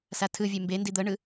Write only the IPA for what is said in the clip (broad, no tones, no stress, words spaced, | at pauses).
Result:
satʰɯvʲe mbendi d̪ɤɳɯ